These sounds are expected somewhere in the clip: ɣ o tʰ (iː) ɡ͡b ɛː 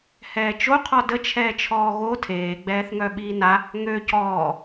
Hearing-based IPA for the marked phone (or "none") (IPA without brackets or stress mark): eː